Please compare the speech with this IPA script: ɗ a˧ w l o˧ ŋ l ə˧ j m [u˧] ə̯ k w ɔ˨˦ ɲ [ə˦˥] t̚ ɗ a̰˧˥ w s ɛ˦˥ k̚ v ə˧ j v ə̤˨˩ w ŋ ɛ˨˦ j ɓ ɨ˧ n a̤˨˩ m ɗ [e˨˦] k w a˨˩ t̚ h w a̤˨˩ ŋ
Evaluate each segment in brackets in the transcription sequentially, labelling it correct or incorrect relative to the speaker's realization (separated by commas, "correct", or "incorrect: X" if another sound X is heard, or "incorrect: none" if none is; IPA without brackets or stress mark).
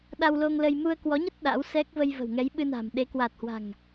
correct, correct, correct